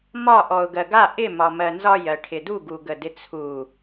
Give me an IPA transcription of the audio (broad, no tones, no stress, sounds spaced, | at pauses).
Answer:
m ɒ ʔ ɔ ʊ̯ ɡ ɜ ɡ a ʔ ɪ m ɒ m ɜ n z ɒ j ɜ ʈʰ ɪ d u ɡ u ɡ ə d ɪ t͡sʰ u